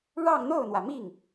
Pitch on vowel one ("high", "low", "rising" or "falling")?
falling